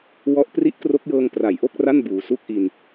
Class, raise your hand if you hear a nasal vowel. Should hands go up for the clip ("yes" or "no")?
no